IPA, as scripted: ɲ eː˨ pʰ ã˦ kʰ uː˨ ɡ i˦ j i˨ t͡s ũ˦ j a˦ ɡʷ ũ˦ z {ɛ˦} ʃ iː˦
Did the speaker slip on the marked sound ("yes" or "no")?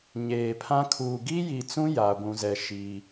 no